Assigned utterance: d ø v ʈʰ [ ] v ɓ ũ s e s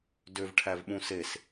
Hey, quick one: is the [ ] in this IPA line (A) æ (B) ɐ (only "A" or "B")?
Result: A